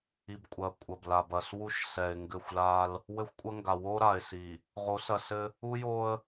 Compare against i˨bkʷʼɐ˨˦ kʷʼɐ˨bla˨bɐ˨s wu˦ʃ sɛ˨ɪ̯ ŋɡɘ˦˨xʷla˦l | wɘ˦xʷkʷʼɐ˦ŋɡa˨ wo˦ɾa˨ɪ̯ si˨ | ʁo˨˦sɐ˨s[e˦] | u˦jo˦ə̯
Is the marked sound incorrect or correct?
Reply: incorrect